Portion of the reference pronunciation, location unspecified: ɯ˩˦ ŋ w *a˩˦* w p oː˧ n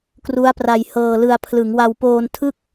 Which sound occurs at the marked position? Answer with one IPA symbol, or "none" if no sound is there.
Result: a˧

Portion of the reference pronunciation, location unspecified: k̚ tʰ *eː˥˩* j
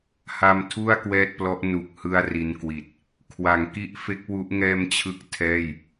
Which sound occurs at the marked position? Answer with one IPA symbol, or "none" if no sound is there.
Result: ɛː˥˩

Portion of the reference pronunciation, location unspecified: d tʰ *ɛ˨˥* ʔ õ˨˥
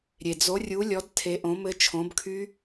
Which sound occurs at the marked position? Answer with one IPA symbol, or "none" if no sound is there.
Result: e˨˥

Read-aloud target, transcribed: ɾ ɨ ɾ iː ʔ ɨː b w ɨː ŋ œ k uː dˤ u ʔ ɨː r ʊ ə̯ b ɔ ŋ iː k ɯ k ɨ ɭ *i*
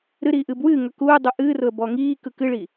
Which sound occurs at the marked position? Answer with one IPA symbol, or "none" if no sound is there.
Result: i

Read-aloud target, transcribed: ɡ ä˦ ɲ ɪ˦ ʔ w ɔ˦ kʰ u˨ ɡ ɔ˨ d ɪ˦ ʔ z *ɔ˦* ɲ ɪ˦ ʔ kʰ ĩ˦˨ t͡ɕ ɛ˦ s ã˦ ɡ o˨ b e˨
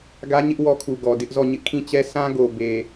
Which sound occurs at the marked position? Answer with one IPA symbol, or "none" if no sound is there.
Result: ɔ˦˨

